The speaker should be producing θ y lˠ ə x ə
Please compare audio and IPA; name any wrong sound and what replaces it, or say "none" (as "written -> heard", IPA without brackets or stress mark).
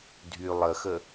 θ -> dʱ